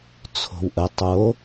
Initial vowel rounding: rounded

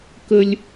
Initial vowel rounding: unrounded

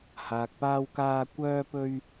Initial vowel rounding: unrounded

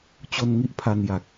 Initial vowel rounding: rounded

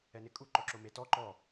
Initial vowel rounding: unrounded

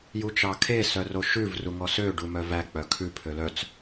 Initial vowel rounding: rounded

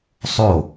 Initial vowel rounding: rounded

